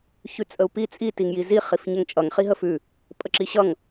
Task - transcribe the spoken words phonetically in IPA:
çʉt͡sʼəu̯pi t͡sʼi tiŋjizi χifɲɛŋt͡ʃʼʌŋ χiɦəfʉ | pʼəǁiɕʌŋ

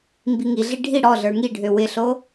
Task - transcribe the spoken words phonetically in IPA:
mbiŋiɮi ɖʱi ɽɔɮə˞ ŋiɖʱø wɪɬo

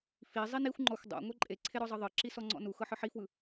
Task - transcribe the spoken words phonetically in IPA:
fi zˤinixʷŋ͡ǃɔxʷ dˤo̰ ŋʷɛǃʼeǀʰe ɾɔzˤɤðˤɤǁi sɔŋ͡ǀɔ̰nuxɤ ħɯħifwɯ

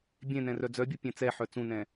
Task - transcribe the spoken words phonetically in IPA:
bʲẽnɛ̃ rœd͡zœbʲu pʲẽt͡sɛħœ t͡sũnɛ̃

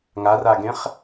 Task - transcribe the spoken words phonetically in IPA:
ŋaraɡẽχ

